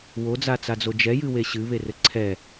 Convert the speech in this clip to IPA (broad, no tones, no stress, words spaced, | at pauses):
wod͡zat͡sad͡zo d͡ʒɛjɨwe ɕɨβerɘ ǀʰɛ